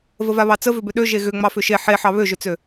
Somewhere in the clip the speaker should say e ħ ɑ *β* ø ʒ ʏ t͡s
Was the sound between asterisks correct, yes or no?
yes